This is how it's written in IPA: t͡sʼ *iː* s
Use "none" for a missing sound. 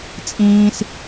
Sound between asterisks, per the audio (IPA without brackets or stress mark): ĩː